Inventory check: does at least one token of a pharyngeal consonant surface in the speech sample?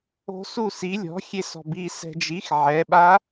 yes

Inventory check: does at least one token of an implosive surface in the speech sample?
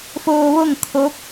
no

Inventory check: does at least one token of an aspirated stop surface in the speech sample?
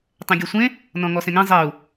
no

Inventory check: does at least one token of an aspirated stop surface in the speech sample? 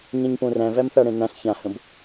no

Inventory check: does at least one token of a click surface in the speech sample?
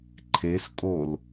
yes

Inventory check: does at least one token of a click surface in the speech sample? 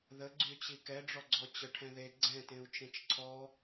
yes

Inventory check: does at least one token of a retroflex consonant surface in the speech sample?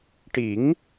yes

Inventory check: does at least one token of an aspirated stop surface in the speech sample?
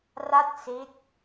no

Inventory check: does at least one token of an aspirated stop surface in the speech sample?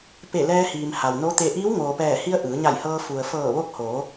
no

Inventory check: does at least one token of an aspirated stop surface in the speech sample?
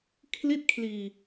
yes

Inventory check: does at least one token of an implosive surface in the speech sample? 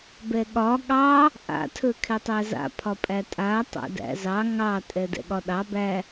yes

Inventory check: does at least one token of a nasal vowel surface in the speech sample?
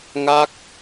no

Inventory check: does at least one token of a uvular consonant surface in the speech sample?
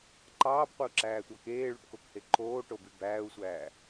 yes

